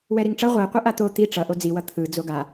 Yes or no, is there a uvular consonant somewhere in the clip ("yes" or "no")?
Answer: yes